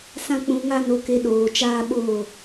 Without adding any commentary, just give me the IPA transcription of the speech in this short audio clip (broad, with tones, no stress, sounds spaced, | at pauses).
s ã˦ k͡p ũ˧ ŋ a˦ n o˧ k e˧ ɗ oː˨ t͡ʃ aː˦ ɓ oː˦˨